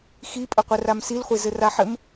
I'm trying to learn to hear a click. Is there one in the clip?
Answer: no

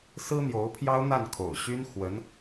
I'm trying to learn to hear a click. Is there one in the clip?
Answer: no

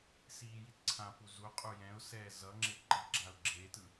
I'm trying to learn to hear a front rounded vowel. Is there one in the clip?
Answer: no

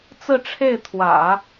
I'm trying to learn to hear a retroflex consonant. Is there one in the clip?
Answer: yes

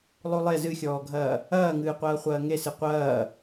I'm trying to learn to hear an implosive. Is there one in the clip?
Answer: no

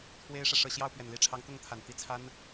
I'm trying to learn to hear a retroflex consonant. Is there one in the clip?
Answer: yes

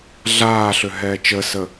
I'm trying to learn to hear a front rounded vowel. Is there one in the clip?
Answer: yes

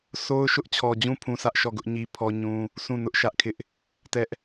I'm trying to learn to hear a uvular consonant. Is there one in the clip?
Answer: no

